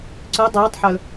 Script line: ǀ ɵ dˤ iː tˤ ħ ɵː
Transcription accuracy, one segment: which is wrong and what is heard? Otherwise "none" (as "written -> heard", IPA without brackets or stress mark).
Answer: none